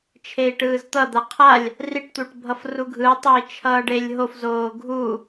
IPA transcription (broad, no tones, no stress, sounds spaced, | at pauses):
t͡ʃʰ e i̯ ʈ ɯː z t̪ ʌ d̪ a qʰ a lʲ | r i ʈ t̪ u ʈ bʱ ʌ f r u ɡʱ ɯ tˤ e i̯ t͡ʃʰ ʌː ɖ e lʲ ɦ o f z oː ɡʱ u